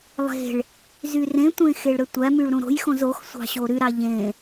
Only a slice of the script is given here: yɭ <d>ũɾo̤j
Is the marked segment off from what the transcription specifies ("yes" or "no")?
yes